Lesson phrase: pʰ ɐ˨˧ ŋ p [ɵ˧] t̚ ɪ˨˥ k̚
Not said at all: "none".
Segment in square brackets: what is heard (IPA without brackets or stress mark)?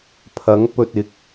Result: ɵ˧